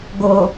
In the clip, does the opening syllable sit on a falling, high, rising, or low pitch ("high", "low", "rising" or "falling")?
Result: low